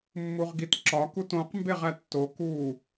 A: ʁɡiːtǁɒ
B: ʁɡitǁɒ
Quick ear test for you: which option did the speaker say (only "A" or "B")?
B